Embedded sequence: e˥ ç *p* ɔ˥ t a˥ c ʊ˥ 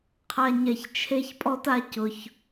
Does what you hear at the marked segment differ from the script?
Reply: yes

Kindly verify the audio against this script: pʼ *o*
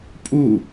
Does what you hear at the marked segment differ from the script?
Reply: yes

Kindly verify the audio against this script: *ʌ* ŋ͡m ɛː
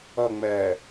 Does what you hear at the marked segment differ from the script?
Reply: no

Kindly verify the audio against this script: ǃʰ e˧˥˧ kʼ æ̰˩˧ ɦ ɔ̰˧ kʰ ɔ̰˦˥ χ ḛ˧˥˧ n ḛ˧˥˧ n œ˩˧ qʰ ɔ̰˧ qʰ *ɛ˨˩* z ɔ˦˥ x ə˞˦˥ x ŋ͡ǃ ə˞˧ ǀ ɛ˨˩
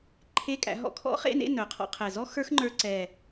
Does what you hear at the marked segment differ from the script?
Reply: no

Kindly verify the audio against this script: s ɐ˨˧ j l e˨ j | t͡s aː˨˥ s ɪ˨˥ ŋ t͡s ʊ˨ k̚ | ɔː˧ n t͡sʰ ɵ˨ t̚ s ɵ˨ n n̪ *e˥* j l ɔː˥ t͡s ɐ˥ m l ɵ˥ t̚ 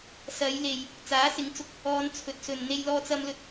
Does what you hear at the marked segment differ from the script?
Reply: no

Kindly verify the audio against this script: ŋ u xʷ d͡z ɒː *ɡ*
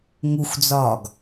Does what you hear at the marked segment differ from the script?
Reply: no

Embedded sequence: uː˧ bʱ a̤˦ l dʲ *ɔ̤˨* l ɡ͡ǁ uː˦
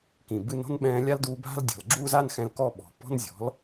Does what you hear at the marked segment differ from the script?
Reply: no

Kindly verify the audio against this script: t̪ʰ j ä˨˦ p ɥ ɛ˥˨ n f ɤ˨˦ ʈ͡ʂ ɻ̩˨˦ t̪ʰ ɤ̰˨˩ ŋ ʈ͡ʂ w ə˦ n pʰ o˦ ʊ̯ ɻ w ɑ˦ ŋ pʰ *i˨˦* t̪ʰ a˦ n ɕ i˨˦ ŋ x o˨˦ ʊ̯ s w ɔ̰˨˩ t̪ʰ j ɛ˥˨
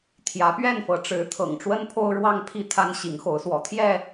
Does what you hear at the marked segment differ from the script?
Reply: yes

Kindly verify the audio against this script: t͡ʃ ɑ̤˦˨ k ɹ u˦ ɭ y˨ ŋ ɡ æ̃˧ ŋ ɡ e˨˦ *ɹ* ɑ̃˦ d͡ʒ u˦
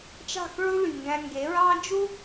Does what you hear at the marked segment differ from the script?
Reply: no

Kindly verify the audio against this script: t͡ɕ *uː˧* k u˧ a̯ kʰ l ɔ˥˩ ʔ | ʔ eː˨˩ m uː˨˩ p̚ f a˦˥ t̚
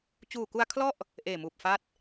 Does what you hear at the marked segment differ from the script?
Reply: yes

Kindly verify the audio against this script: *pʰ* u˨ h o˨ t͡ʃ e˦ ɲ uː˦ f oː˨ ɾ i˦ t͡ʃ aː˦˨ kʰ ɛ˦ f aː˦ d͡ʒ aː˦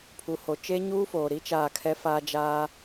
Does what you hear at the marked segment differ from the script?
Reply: no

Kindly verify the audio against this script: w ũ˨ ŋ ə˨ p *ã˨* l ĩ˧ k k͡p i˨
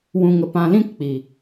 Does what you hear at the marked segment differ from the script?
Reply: no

